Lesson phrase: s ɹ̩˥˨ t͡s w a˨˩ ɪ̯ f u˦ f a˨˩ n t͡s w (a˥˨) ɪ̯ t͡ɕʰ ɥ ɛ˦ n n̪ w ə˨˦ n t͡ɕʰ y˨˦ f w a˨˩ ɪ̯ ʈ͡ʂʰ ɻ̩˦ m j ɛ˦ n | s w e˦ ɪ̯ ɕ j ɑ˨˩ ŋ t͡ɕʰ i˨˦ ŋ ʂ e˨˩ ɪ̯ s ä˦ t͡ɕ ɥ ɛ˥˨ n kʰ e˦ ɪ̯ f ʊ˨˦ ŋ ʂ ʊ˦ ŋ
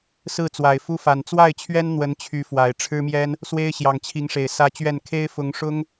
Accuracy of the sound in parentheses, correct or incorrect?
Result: correct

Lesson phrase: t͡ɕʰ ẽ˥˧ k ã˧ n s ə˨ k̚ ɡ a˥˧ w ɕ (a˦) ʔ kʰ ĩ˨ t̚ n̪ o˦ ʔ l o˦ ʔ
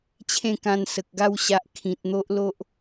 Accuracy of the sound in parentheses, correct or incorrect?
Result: correct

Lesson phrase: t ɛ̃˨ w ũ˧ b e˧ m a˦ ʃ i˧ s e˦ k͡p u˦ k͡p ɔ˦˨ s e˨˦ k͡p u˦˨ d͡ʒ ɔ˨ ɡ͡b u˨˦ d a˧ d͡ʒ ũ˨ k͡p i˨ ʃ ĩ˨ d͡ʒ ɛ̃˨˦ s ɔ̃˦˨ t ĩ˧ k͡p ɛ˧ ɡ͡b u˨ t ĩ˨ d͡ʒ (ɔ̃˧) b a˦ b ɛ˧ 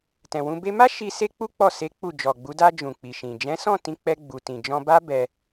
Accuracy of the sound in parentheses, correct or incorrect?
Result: correct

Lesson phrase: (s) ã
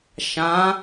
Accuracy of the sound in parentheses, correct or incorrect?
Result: incorrect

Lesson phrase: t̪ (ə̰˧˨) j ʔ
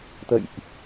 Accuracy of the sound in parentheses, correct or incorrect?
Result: correct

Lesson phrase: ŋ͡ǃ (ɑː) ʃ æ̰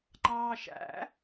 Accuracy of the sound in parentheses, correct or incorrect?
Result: correct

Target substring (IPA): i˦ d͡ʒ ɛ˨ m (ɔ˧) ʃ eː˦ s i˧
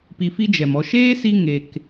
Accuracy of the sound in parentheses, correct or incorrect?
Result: correct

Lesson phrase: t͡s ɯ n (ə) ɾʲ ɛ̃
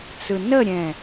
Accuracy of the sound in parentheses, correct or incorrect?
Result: correct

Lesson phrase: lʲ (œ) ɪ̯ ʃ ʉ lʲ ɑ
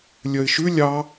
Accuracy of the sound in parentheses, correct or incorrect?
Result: correct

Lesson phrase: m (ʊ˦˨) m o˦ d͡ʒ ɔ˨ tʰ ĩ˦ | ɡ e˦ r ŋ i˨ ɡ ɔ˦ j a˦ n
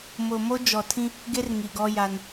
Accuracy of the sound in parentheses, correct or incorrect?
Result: incorrect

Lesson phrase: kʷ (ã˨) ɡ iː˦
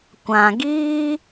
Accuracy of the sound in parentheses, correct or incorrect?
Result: correct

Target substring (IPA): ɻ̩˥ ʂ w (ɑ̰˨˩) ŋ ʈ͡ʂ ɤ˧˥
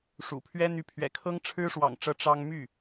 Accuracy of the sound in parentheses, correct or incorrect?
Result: correct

